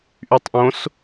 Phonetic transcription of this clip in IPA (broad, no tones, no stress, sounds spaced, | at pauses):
ʔ y tˤ ʔ õ s